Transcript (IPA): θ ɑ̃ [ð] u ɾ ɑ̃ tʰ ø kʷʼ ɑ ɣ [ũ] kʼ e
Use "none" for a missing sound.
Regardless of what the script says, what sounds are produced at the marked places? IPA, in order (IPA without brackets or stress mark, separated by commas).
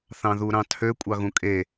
ð, ũ